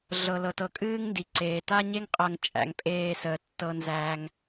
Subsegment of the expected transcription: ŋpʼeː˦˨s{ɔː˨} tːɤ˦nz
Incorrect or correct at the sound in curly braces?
incorrect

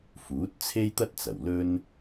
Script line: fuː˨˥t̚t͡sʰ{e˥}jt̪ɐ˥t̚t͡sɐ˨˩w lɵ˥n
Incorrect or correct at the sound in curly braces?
correct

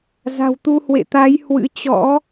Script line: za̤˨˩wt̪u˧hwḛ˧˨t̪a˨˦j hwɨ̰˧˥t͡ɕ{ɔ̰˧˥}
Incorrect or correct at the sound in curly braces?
correct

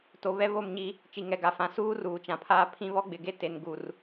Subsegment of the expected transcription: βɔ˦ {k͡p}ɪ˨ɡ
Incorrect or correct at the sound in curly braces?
incorrect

